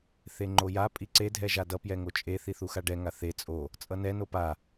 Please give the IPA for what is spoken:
θ e ŋ͡ǃ o j a pʼ i ǀ e dʱ ɛ ʒ a d ʌ p j ɛ ŋ o t͡ʃʼ e θ i θ u x a ɖ ɛ ŋ a θ e t͡sʼ o | t͡sʼ ʌ n ɛ n o p a

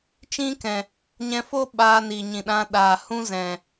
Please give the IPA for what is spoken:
t͡ʃ ĩ˦ k ɛ̃˨ | ɲ ɛ̃˧ f o˦ ɓ aː˧ n i˨ ɲ ĩ˨ ɗ ã˧ ɗ aː˨ h ũ˦ z ɛ̃˨

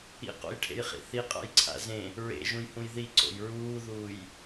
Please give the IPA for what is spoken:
ḭ q o̰ j ʈʰ ḛ j χ ḭ θ i qʼ a̰ j ǀʰ a̰ z ẽ | ɹ ḛ ʒ ũ j h ũ j ð i ǀ o̰ j ɹ uː ð uː j

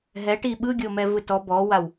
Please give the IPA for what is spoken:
ɦ ɛ ʈ i ɓ ɯ ɡʲ o m ɛ v ɯ t ɔ b ɔ w a w

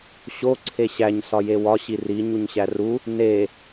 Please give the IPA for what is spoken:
ɕ o ǀʰ e ɕ æ ɲ s ɒ j e w ɒ ɕ i r i ɲ u ɲ ɕ æ r u | n e

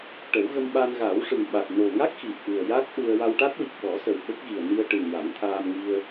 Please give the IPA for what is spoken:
ʈ ə˨˩˦ w ɣ ə˧ m ɓ a˧ n ɣ a˨˩˦ w ʂ ɨ˨˩ ŋ ɓ a˨˩ t̚ n o˨˩ ŋ a˦˥ k̚ x i˨˩ t̚ ʔ ɨ˨˩ ə̯ j a˦˥ k̚ ʔ u˧ ə̯ w a˧ w ʈ a˦˥ t̚ w i˨˩ k̚ ɓ ɔ˨˩˦ s ə˨˩ w ɓ ə˦˥ k̚ ɣ i˨˩ ə̯ n i˧ ə̯ ʈ ɨ˨˩ n j a˨˩˦ ŋ t̪ʰ aː˧ m ŋ i˧ ə̯

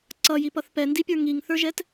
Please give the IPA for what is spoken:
ǀ ʌ j i p ʌ θ p ɛ n d i pʲ ə˞ ŋ i ŋ θ ə˞ ʒ ɛ t

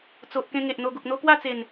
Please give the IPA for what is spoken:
t͡s o˨ ʔ k ẽ˧ ŋ e˨ ʔ n̪ o˧ ɡ u˨ k̚ n̪ o˧ k w a˥˧ t͡s e˨˩ n

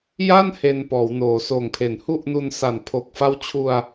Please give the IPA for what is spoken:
j a˥˩ n h e˧ n p ɔː˩˦ w n oː˩˦ s oː˨˩ ŋ pʰ e˩˦ n h u˥˩ ʔ n u˧ n s a˨˩ n pʰ o˨˩ k̚ f a˦˥ w t͡ɕʰ u˧ a̯

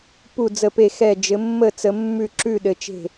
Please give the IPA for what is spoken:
p u˥˨ d͡z ə˥˨ p e˥˨ x ɛ˥˨ d͡ʒ ɘ˨˦ mː ə˥˨ t͡s ə˨˦ mː ʉ˥˨ ǁ ʉ˥˨ ɗ ɘ˨˦ t͡ʃ e̤˥˨

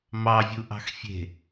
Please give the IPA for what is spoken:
m ɑ vʲ u ʔ ɑ̤ x fʲ e̤

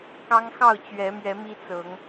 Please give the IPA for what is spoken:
k ɑ˦ ŋ x ɑ˥˨ ʊ̯ t͡ɕ ɥ ɛ˨˦ m ɥ ɛ˨˦ m i˦ t͡s ɤ˨˦ ŋ

